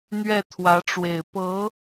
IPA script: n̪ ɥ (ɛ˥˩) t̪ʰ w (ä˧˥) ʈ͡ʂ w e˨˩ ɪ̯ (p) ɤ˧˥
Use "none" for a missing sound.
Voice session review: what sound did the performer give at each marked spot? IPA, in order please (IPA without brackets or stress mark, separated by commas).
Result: ɛ˥˩, ä˧˥, p